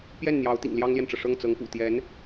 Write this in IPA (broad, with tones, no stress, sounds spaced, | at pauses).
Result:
p j ɛ˥˩ n n̪ j ɑ˧˥ ʊ̯ t̪ ḭ˨˩ ŋ l j ɑ˥ ŋ l j ɛ˨ n ʈ͡ʂ ɤ˩ ʂ ɤ˥˩ ŋ t͡s ɤ˧˥ ŋ p ṵ˨˩ t̪ j ɛ˧˥ n